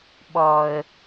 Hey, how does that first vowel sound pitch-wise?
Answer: low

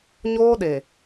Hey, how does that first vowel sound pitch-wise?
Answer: high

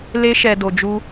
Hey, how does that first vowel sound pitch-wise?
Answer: high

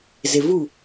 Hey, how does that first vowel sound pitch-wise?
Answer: low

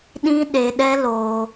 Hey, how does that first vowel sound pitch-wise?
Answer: high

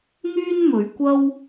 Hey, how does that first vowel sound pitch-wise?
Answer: high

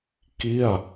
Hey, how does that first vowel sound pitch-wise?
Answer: falling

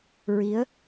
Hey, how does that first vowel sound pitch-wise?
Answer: rising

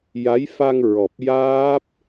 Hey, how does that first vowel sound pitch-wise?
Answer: rising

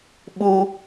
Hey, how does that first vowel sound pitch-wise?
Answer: high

